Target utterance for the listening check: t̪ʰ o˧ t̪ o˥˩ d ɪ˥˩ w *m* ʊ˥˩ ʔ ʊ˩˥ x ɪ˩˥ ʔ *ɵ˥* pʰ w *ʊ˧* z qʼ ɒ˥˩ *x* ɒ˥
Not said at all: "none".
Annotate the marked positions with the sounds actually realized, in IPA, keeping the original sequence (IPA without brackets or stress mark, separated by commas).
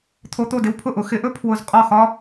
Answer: pʰ, ɵ˥, ʊ˧, x